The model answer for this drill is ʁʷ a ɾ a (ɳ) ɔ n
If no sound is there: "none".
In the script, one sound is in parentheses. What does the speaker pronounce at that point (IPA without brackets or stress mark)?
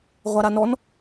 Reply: n